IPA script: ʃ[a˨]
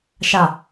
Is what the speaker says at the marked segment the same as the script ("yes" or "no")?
yes